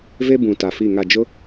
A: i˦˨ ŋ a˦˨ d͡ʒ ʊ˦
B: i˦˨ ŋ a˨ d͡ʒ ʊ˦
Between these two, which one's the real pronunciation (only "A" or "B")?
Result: A